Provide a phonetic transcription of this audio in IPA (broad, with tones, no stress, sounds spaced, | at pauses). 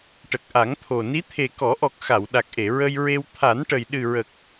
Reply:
ʈ ə˨˩ k̚ ʔ a˨˩˦ ŋ t̪ʰ o˨˩ n i˧˥ t̪ʰ e˨˩ k ɔ˨˩˦ ʔ ɔ˨˩ k̚ x a˨˩˨ w ɗ a˨˩ k̚ ʔ e˨˩˨ ɹ ə˧ j ɹ e˧ w t̪ʰ a˨˩˦ n ʈ ə˨˩ j ɗ ɨ˨˩ ɹ ə˨˩ k̚